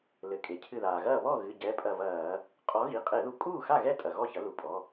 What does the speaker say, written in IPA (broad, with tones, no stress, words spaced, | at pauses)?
lɘ˩˧˩ kʼe˩cʰɨ˧˩ðaː˩ɣɐː˥˩ βɔ˥˩ɣɨ˩˧˩ ɟɛ˩˧˩ pʼɐ˧˩vɐː˧˩˧ | qʼɔ˨˥ɣi˩˧˩ qʼe˧˩˧ðu˧˩kʼuː˥˩xa˥˩ ɣɛ˥˩tʼɐ˩ ɣɔ˥˩çɐ˨˥lu˩˧˩pʼɔ˩˧˩